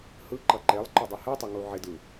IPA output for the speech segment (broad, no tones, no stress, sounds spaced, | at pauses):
h ɯ ǃ ʌ ǃ e lˠ ǃ o dˤ ɯ h ɯ tˤ ɪ ŋ u ʕ ɪ d ɯ